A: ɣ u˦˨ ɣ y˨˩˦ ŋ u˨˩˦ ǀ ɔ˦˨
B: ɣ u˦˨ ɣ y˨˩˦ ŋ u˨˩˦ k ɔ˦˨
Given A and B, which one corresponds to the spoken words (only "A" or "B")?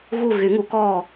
B